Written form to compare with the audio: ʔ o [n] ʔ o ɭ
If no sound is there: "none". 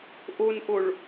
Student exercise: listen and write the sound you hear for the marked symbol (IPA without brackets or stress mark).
n